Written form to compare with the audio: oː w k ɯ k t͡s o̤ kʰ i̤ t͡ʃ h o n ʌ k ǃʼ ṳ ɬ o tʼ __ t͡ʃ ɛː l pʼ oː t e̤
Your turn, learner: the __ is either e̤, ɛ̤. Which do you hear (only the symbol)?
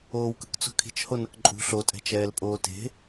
ɛ̤